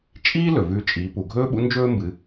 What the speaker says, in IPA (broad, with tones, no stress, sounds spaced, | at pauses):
t͡ʃʼ iː˥ l ɵ˩ v ʉ˧ t͡ʃʼ iː˩˧ p u˩ ɡʱ ɵː˥ ɓ ṵ˧˥ n d͡ʒ ɵː˥ m b ɨ˩˧